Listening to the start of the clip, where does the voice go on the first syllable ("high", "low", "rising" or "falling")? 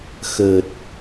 low